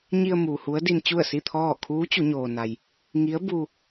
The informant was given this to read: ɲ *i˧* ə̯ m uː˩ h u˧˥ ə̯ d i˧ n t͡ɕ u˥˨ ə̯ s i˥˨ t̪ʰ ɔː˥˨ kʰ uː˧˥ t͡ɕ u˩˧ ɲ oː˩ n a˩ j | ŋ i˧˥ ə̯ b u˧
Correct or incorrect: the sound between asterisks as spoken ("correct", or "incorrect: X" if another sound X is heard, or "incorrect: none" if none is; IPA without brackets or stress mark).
correct